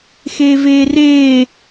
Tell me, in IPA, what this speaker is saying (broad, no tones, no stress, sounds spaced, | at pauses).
x eː v eː r eː